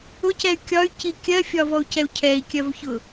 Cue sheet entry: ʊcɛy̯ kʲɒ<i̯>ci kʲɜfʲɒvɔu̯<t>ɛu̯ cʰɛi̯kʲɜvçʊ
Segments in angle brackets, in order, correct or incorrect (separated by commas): incorrect, incorrect